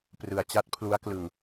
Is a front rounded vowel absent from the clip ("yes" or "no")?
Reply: yes